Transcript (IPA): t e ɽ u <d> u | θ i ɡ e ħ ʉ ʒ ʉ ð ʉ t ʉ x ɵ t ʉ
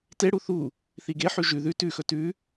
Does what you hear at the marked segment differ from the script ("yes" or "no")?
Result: yes